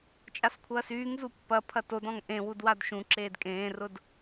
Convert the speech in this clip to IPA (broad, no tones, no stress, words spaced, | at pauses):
t͡ʃʼaskʷʰɐːsyːŋ zupːɐ pʰɐtodɔ̃ŋ ʔẽwudwad ʃũǁeːd kʼẽːrʊd